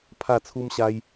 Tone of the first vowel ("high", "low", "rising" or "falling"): falling